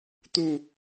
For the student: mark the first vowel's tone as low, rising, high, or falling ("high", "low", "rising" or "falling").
falling